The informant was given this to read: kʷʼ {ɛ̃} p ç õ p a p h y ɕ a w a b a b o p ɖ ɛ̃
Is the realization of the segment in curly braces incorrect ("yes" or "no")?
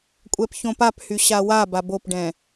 yes